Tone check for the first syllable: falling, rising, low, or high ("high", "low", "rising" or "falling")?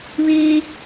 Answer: high